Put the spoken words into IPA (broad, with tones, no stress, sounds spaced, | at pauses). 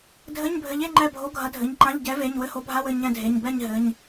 dʱ ɘ˧˥˧ ɲ bʱ ɘ˨˥ ʎ e˧˥˧ ŋ͡ǃ ɛ˦˨ bʱ o˨˥ ɡʱ ɐ˨˥ dʱ ɘ˩˧˩ ɲ ǃ ã˧˥˧ ʎ ɟ ɛ˨˥ v e˩˧˩ ɲ w ɘ˧˥˧ h o˨˥ bʱ a˧˥˧ w ɘ˦˨ ɲ ɛ̃˦˨ dʱ e˩˧˩ ɲ b ɛ˦˨ ɲ ɦ ɘ˩˧˩ ɲ